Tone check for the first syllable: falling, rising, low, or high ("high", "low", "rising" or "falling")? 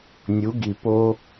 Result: rising